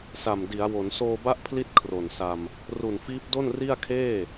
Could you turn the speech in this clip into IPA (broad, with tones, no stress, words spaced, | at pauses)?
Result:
sa˨˩mdi˩˦a̯wo˩˦n soː˧ba˦˥ʔpʰli˦˥t̚ kʰro˨˩nsa˧m | ru˨˩nfiː˦˥p̚do˥˩n ri˥˩a̯kʰeː˥˩